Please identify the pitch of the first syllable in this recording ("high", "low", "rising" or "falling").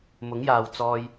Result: rising